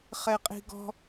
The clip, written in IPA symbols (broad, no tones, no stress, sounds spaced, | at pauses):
χ ɛ qʼ i̤ ɡ ɔ̤